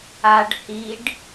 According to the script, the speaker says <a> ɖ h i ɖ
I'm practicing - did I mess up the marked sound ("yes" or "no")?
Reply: no